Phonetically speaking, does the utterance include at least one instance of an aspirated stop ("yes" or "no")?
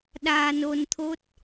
yes